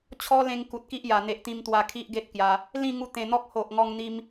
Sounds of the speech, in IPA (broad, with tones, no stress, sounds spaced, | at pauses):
t͡ɕʰ ɔ˦ l ẽ˧ ŋ k u˨ t̚ k i˦ ʔ j a˨˩ n̪ e˨ ʔ t̪ ĩ˧ m t̪ w a˧ kʰ i˦ ʔ ɡ e˦ t̚ k j a˧ | l ĩ˥˧ ŋ u˧ t̪ ẽ˨˩ n̪ ɔ˦ k̚ h o˨ ʔ ŋ ɔ˧ ŋ n̪ i˦ m